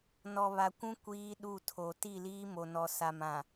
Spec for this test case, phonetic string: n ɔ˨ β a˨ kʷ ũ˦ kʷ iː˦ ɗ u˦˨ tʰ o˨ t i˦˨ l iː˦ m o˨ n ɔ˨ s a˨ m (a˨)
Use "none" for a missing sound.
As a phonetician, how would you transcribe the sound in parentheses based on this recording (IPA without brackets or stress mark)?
ã˨